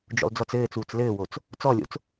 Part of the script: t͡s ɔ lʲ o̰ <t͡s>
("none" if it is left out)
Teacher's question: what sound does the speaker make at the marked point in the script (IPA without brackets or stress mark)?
t͡s